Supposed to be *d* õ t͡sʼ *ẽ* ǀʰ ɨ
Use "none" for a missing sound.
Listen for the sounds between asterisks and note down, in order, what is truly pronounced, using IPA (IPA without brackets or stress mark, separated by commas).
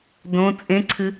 d, ẽ